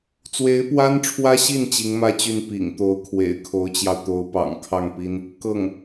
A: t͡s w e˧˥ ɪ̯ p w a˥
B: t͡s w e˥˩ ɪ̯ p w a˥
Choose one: A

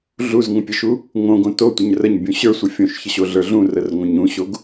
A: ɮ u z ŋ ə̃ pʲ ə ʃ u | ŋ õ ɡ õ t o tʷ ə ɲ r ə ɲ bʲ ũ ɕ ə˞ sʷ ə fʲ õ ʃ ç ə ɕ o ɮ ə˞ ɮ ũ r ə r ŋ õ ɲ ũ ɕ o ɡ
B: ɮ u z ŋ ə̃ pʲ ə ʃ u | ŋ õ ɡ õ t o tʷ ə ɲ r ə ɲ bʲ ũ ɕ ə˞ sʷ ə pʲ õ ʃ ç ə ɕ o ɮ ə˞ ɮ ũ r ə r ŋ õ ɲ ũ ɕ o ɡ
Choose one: A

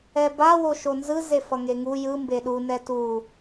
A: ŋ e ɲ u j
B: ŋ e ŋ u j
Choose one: B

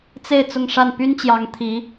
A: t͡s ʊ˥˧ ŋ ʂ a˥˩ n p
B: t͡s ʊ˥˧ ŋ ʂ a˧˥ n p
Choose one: A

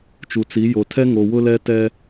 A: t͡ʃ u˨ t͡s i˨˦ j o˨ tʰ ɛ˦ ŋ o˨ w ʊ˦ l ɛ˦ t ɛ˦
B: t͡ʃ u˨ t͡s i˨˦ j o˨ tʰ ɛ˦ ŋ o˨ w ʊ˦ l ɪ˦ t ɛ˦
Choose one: A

